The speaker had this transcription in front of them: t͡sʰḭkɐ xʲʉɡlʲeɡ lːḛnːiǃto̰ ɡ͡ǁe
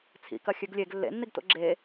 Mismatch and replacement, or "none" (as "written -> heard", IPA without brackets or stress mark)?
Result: ǃ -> ɡ